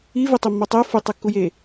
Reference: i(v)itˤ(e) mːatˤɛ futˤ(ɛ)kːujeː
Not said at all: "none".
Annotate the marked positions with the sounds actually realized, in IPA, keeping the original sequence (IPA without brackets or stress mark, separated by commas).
v, i, ɛ